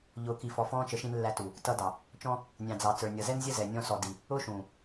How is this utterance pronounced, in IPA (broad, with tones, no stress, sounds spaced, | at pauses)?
ʎ ʊː˨ k i˨ f ɔ˨ f ɔ̃ː˧ t͡ʃ ə˨˦ ʃ ĩ˧ n lː æ˧ t u˨ | t ʌ˧ d ɑ˨ | t͡ʃ ɔ̃˦ | nʲ ɑ̃˨ d͡z ɑ˨ t͡s ə˞˨ nʲ ʌ˨ z ɛ˦ n zʲ ə˦ z ɛ˨ nʲ ɔ̃˧ s ɔ˨ d i˧ | ʊː˦ ʃ ũː˨